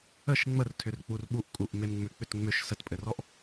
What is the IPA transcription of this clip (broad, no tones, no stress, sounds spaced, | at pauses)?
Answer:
ə ʃ ŋ͡m ə r tʰ ʏ r k͡p u r ɓ u ʔ kʼ u ʔ m e m ŋ͡m ʏ k͡p ʏ t ŋ͡m ʏ ʃ s ə t pʼ ɘ r ɔ ʔ